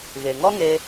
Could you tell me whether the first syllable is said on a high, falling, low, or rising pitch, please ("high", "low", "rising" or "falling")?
low